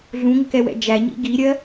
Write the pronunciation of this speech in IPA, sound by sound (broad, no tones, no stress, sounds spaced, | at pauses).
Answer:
ɮ ũ ŋʷ ɪ k ɛ w ɛ̰ d͡ʒ æ ɲ ḭ ɡ i ɾʲ ɜ